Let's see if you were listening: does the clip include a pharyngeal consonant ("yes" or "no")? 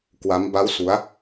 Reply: no